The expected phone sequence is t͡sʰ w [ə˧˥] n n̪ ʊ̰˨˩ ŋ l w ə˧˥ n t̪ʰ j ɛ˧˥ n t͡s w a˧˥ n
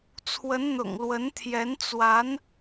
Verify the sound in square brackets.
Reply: correct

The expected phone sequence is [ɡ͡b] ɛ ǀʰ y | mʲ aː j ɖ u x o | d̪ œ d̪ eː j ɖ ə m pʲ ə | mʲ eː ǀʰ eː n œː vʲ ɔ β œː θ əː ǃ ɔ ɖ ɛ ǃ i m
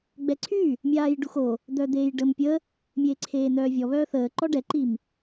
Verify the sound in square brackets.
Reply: correct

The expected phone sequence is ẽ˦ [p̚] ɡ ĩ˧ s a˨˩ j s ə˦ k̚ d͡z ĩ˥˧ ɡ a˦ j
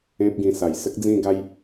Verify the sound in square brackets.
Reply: correct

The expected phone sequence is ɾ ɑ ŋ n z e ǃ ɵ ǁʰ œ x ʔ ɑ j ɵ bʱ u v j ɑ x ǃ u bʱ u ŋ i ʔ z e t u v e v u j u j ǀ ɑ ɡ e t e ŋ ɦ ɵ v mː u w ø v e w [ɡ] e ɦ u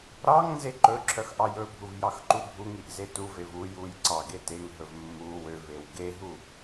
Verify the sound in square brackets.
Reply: correct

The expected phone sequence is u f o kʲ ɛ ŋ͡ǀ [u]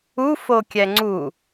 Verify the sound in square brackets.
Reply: correct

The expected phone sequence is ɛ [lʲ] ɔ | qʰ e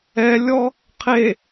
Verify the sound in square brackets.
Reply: correct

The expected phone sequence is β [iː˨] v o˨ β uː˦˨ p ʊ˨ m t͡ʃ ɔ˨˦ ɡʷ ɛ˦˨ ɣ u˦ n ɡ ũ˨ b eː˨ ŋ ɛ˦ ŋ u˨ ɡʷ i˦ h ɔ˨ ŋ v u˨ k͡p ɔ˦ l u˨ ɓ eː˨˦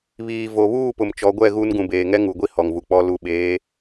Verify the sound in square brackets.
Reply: correct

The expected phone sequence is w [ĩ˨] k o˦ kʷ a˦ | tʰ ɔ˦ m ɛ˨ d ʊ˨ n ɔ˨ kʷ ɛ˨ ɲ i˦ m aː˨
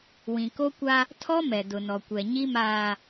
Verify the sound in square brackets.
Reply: correct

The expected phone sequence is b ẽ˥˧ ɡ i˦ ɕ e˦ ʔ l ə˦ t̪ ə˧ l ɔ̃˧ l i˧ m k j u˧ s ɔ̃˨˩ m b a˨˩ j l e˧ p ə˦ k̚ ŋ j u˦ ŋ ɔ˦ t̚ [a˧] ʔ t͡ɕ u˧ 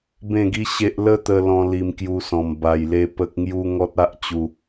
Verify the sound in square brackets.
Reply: incorrect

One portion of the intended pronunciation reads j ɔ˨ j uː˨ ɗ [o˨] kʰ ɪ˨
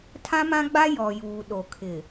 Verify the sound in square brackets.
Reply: correct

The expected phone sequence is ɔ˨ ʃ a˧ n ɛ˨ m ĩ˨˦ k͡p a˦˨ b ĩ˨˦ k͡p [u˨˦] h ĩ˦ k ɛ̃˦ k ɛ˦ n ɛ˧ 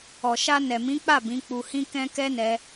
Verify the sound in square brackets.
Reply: incorrect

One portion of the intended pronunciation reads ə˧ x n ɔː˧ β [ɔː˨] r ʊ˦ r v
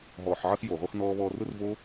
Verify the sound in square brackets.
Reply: incorrect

